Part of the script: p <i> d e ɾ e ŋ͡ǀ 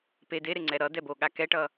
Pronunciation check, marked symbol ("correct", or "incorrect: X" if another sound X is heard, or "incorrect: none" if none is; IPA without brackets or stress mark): incorrect: e